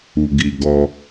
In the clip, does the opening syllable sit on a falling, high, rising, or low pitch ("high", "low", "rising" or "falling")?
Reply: low